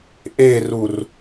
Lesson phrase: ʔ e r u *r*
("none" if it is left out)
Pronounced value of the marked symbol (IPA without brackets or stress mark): r